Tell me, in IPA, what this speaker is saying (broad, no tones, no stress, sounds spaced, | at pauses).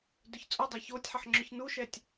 d œ ç t͡sʼ ʊ dˤ a ç o tʲ ħ ɐ ħ ŋ͡ǁ ʏ ç n u ʃ ɛ tʲ